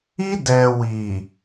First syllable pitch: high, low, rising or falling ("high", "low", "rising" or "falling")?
high